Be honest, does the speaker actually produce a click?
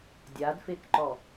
yes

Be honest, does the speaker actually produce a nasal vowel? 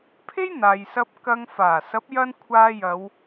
no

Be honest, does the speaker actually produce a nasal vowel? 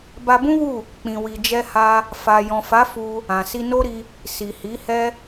yes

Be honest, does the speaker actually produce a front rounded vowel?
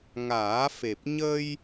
no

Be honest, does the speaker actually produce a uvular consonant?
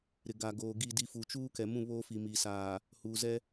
no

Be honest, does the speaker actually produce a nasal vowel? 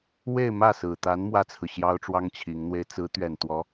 no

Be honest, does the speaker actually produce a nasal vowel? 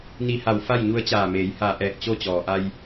no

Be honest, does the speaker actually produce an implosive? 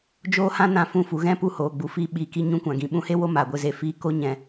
yes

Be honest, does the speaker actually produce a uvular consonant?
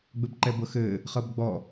yes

